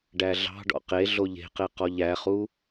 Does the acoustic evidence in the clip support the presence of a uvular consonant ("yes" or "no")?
yes